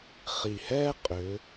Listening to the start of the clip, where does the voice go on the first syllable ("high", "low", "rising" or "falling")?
low